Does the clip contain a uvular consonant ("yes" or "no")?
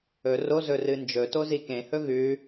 no